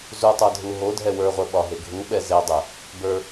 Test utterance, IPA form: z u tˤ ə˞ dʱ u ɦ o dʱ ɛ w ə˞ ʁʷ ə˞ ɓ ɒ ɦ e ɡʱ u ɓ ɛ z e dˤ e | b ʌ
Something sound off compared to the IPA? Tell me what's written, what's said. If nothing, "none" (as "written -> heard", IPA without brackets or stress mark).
ʌ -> ə˞